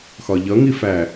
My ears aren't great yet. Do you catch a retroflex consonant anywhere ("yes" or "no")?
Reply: no